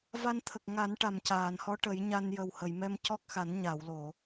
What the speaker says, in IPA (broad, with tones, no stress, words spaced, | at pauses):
va˧nt̪ʰə˨˩k̚ŋa˨˩˦n ʈa˨˩mcaː˨˩˨nhɔ˧˥ ʈə˨˩˦jɲa˧n jə˨˩whə˨˩˨jmɛ˧m cɔ˦˥k̚xa˨˩˦n ɲa˨˩˨wlo˨˩˨